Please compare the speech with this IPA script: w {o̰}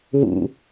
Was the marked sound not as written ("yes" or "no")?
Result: yes